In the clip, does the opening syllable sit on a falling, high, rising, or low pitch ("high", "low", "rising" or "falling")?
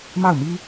falling